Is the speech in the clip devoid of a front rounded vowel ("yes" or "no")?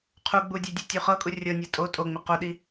yes